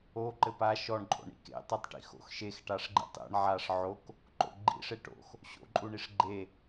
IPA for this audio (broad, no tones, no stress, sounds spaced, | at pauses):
o ǃ ɘ p a ʃ ɔ ɳ ǃʼ o̰ ɳ ḭ k ḛ tˤ i tˤ ʈ ḭ x o̰ x ʃ e x ʈ a ʂ ɡ͡ǃ ḭ tˤ ḛ ɳ ʕ a ʂ ʕ o k | ǃ o̰ ɡ͡ǃ ḭ ʂ e ʈ o̰ x | ɕ o̰ ǃʼ u ɳ i ʂ ɡ͡ǃ e